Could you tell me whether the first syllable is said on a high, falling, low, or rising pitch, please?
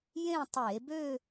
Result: falling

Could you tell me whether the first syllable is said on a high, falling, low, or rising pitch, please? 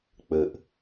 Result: low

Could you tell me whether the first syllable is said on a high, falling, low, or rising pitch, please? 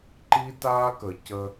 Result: high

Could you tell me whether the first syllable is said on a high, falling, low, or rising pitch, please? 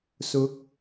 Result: rising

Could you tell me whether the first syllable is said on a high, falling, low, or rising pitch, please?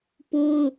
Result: high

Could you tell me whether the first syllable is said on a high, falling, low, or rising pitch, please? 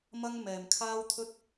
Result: high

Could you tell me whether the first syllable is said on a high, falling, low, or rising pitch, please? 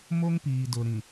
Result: high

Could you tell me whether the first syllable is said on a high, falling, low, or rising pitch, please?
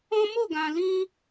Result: high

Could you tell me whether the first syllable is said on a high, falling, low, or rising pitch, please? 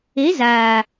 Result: rising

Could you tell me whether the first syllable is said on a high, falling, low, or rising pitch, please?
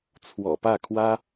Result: low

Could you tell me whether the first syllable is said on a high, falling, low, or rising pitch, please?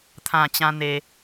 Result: low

